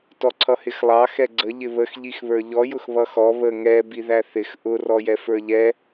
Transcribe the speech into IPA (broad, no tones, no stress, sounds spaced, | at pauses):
t ɔ ǀʰ ʌ h ɪ x lˠ ɑ x ɛ ɡ͡ǀ ə ʎ ɪ β ə x ʎ i x β ə˞ ʎ ɔ j ʊ x β ʌ x ɔ β ə ŋ ɛ b i ð æ θ ɪ x ʔ ʊ r ɔ j ɛ f ə˞ ʎ ɛ